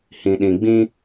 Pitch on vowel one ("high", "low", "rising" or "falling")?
low